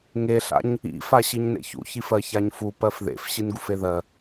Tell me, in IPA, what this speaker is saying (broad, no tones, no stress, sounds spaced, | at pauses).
ŋ e ɬ a̰ ɲ | ḭ f a ɕ i ɲ n ḛ ç ṵ ç i f ɜ ç a ɲ f u p ɜ f ð ḛ f ɕ i n ɡ u f e ð ɜ